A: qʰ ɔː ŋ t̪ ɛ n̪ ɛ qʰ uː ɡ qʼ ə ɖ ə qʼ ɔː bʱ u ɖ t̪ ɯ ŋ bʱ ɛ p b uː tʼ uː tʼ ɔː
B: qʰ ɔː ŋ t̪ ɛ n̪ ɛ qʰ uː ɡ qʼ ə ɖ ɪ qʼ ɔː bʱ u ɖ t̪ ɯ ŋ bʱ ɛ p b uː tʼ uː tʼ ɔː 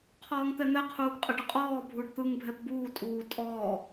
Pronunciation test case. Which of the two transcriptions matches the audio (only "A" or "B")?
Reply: A